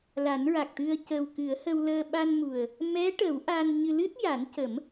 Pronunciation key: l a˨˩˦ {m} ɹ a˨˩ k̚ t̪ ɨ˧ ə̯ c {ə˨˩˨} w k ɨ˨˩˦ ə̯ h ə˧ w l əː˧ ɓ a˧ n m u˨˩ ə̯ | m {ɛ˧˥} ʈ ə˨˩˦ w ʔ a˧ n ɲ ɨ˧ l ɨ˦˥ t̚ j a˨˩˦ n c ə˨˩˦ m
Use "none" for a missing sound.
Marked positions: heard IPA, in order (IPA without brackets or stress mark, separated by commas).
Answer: n, ə˨˩, ɛ˧˥